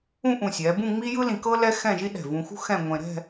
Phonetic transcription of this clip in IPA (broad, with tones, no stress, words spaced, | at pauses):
ũ˥˧ʔũ˧˩sʲɛ˩˧bũ˥˧ ŋ͡mi˥jɯ˥lĩ˧kɤ˥ lɛ˥xɛ̃˥˧ʒi˥ ɗɛ̤˧˩vũ˧xṳ˥ xɛ̃˥˧ŋʷẽ˧ ɾɛ̤˥˧